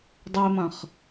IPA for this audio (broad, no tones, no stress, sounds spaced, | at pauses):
dˤ ɛ e̯ m ɐ̃ χ